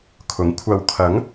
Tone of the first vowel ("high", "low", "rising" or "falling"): rising